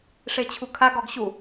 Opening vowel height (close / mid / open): mid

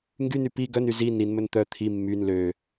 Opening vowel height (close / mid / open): close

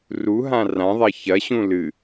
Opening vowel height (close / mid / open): close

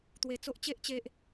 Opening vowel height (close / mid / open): mid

